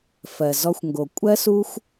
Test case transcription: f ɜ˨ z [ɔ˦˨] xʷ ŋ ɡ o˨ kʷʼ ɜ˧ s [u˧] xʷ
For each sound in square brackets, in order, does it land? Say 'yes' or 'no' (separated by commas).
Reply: no, yes